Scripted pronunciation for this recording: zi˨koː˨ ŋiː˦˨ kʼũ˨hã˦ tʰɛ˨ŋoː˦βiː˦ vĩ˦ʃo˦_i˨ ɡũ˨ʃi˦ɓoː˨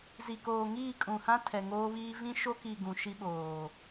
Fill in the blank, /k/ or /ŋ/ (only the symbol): k